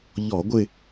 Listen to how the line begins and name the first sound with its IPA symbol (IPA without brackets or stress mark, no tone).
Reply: ʎ